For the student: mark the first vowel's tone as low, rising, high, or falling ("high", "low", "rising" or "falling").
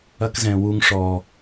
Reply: high